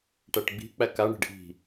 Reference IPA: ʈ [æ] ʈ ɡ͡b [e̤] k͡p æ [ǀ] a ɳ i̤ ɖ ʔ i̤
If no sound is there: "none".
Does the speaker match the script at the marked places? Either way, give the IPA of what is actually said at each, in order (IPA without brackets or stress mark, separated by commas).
æ, i̤, k